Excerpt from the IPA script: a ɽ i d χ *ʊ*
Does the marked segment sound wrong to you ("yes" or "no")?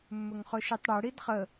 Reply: yes